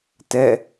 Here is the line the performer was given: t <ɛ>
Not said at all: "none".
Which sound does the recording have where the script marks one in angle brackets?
ɛ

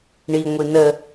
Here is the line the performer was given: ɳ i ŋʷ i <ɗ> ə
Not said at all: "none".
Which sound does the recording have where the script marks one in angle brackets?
n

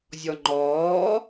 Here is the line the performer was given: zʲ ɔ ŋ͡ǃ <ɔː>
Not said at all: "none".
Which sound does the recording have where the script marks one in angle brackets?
ɔː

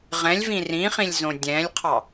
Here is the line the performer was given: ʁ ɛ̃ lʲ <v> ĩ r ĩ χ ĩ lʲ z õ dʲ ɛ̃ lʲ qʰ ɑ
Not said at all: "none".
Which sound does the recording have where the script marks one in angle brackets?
v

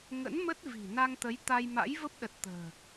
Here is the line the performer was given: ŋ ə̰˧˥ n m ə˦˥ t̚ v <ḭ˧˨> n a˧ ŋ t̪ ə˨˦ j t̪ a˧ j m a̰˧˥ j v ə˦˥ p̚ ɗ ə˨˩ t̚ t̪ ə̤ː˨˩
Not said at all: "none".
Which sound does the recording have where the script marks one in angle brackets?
i̤˨˩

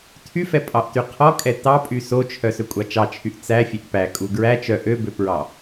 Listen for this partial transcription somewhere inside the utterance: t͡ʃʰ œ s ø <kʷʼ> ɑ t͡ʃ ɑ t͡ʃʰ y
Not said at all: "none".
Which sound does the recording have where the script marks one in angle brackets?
kʷʼ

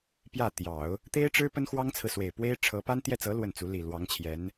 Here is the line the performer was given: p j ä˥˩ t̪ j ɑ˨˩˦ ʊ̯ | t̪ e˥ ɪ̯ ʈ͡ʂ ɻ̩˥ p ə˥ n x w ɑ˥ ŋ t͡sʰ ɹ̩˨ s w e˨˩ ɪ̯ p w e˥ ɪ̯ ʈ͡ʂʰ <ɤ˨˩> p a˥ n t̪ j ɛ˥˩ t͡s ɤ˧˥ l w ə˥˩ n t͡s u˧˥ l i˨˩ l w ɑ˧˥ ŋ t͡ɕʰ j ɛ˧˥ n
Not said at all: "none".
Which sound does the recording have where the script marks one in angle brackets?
ɤ˧˥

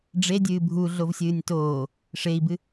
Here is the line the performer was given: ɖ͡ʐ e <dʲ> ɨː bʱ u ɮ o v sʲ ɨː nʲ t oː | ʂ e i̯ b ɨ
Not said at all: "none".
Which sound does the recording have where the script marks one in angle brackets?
dʲ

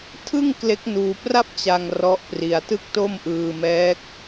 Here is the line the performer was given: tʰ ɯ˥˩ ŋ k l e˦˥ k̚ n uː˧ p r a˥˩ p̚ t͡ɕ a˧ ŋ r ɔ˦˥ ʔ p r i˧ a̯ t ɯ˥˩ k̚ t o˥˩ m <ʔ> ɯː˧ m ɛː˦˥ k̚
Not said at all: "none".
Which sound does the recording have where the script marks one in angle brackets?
ʔ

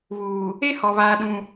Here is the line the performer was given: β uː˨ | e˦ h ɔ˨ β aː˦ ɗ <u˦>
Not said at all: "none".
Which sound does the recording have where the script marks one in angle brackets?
ũ˦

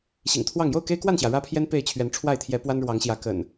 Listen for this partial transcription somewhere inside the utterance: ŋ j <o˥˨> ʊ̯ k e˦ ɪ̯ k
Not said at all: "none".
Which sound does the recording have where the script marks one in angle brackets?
o˥˨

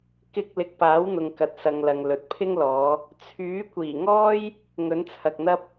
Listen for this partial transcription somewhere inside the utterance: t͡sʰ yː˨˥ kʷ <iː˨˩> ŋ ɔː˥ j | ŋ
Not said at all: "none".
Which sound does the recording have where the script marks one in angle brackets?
iː˨˩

